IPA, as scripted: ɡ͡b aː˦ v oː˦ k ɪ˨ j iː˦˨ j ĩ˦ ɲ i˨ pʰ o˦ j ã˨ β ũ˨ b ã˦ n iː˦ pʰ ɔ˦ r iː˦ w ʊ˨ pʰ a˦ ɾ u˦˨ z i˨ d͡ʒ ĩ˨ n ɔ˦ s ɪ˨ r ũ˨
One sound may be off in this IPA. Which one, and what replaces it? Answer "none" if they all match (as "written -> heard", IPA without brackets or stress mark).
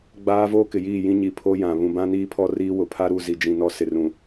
none